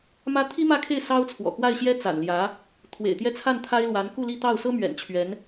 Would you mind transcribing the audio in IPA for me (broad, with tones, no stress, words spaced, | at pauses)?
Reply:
mä˥ t̪ʰi˥mä˥˧kʰe˥˩ɪ̯ sɑ˥ʊ̯t͡sʰwɔ̰˨˩ kwa˥˩ɪ̯ɕjɛ˥ t͡sa̰˨˩nljä˧˥ | t̪ʰwḛ˨˩ɪ̯t̪jɛ˥˧ t͡sʰa˥˩n t̪ʰa˥ɪ̯lwa˧˥n ku˥˧li˥˧ t̪ɑ˥˩ʊ̯sɤ˥ mɥɛ̰˨˩nt͡ɕʰɥɛ˧˥n